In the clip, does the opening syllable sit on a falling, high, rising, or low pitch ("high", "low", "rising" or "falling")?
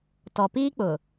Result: low